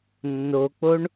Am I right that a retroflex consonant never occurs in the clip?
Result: no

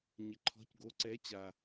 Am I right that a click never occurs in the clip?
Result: no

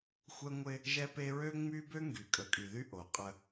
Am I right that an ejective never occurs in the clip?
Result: no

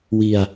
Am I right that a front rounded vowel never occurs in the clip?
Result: yes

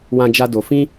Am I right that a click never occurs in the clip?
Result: yes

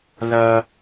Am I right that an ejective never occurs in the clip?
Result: yes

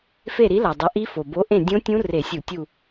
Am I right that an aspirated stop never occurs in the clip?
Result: yes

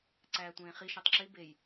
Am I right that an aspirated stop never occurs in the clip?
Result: yes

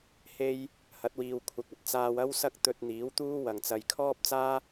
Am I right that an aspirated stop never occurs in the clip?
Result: no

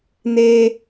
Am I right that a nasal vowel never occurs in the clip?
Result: yes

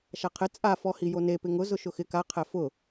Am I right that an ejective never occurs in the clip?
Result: no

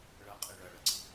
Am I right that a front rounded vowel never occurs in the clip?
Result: yes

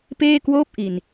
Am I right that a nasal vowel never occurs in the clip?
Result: yes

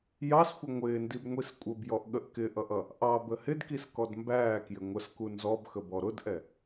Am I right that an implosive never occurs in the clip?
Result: no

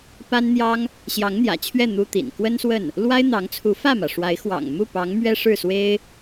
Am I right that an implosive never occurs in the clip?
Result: yes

